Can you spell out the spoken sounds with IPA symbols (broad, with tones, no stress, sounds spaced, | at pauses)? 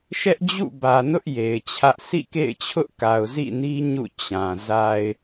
ʃ ɛ˦ ʔ d͡ʑ ṵ˦˨ b ä˨ n ʊ˦ ʔ j e˨ ɪ̯ t͡ɕʰ ä˦ ʔ s ḭ˦˨ k ḛ˦˨ ɪ̯ t͡ɕʰ ʊ˦ ʔ k a˨ ʊ̯ z ḭ˦˨ n i˦ ɲ ṵ˦˨ t͡ɕ ã˨ z a˨ ɪ̯